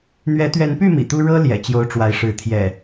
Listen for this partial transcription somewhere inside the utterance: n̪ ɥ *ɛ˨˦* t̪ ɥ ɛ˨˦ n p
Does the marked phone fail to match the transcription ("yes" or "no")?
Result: no